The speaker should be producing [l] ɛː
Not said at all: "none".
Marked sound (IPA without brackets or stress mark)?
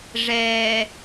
ʐ